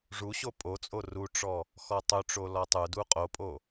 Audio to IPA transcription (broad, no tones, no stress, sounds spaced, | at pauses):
ʐ u ɕ o pʼ o t͡sʼ o r u ʈ͡ʂ ɔ | x ɔ tˤ u ʈ͡ʂ o l ɔ tˤ u d u qʼ o pʼ o